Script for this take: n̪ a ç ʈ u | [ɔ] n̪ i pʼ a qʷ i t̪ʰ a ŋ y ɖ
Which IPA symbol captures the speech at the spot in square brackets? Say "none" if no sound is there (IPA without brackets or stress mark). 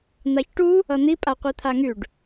ʌ